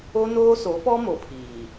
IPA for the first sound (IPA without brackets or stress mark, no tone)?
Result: o